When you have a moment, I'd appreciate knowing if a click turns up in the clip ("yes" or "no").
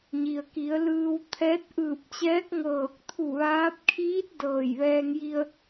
no